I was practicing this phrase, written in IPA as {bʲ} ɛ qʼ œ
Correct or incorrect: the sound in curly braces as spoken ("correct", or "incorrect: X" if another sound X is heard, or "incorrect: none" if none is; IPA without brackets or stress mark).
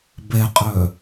incorrect: b